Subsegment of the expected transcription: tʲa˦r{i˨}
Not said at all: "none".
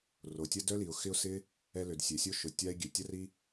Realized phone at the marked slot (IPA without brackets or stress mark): i˦